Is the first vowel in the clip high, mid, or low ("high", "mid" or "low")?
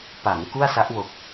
low